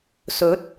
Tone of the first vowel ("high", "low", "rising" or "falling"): rising